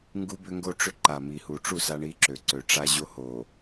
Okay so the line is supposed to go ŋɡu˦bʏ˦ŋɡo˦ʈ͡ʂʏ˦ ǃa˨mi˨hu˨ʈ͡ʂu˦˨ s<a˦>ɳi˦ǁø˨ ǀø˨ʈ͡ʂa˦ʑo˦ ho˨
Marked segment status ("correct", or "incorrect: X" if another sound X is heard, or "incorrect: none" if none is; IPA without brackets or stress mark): correct